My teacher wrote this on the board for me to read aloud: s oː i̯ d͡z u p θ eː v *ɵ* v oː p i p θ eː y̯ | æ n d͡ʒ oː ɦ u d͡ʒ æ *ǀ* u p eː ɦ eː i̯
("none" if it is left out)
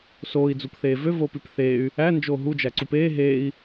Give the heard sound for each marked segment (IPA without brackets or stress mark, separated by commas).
ø, ǀ